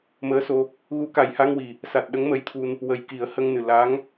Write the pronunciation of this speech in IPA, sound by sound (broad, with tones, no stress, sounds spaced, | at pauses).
m əː˧˥ s o˧ | ɣ u˨˩˦ k a˨˩ j h a˧ ŋ w i˨˩ | s a˨˩ t̚ ɗ ə˧˥ ŋ m ə˧˥ j t̪ʰ u˧ n | w ə˨˩ j k i˨˩˦ ə̯ h ə˧ ŋ n ɨ˨˩ l a˧˥ ŋ